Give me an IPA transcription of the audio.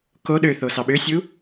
k o ɗ ø θ o s ɑ ɓ ø sʲ u

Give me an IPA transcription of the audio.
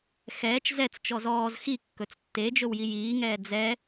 x ɛː t͡ʃ z ɛ t͡s t͡ʃ ɔ z ɔː z x i kː ɵ t͡s tː e d͡ʒ ɵ w j i j iː ŋ ɛː d͡z ɛ

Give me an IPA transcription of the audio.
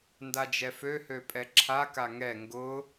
n d a d͡ʒ ɛ f ø h ø pʼ ɛ ǁʰ a k a ŋ ɛ ŋ ɡ ʊ

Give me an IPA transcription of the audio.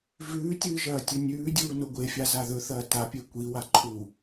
v ʉː tʲ ɨː ʒ ɐː tʲ ɵ nʲ ʉː dʲ uː n o ɡʷ e fʲ a z a ð ɵ θ ɐː t a pʲ e kʷ i w a ǃʰ u

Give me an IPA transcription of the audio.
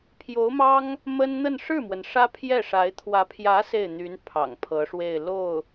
pʰ j o˧˥ ʊ̯ m ɑ˥ ŋ | m ə˥ n n̪ ə˥˧ n ʂ ɻ̩˥˩ m w ə˩ n ʂ ä˥ pʰ j ɛ˥˩ ʂ a˧˥ ɪ̯ t̪ʰ w ä˧˥ pʰ j ä˧˥ s e˥˩ ɪ̯ n̪ y˧˥ n pʰ ɑ̰˨˩ ŋ pʰ ɤ˧˥ ʂ w e˥˧ ɪ̯ l o˥˩ ʊ̯

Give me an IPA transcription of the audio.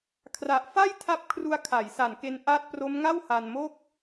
kʰ r a˨˩ ʔ f a˥˩ j tʰ a˦˥ p̚ kʰ r u˧ a̯ kʰ a˩˦ j s a˨˩ n k e˧ n ʔ a˦˥ t̚ p r o˦˥ m ŋ a˥˩ w h a˧ n m o˥˩ k̚

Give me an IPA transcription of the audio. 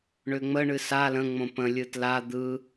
ɳ ʏ ŋ͡m ə ɳ ɨ s a l ə̃ ŋ͡m õ p ə̃ lʲ ɯ t l a d̪ ɯ

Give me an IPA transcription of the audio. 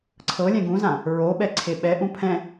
ǀʰ ɤ lʲ ɛ̃ ɡ ũ z ã | ɹ o ɓ ɛ ǀʰ e ɓ ɛ ʔ ũ pʰ ɛ̃

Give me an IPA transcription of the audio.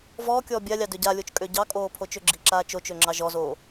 v ɔː kʲ ɔː bʲ a lʲ ɑ d ø ɟ a lʲ o t͡ʃ kʼ ø ɟ ɑ kʼ oː pʰ o t͡ʃ ø ɡ͡ǁ i ǁ aː t͡ʃ o t͡ʃ ø ŋ͡ǁ ɑ ʒ ɔ z oː

